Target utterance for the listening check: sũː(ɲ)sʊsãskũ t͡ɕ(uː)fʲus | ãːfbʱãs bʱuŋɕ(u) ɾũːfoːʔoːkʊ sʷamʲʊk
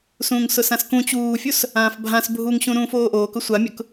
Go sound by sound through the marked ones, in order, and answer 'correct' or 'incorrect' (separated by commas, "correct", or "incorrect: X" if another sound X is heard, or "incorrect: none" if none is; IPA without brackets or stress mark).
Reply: incorrect: ŋ, correct, incorrect: ũ